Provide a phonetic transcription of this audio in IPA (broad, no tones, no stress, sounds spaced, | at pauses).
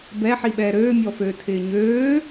b ɛ ħ i ɓ ɛː ɾ øː mʲ ɔ f øː tʰ ɪː ɲ øː